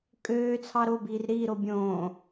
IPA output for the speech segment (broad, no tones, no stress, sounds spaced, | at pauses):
kʼ øː t͡sʰ ɑ ɾ o b iː r ɾ iː ɾ o bʲ õː